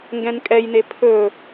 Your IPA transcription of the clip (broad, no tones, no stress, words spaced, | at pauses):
ŋɡɛ̃nkʼɛjne pʰɵ